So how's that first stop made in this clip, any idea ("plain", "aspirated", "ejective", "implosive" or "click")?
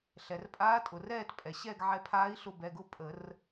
ejective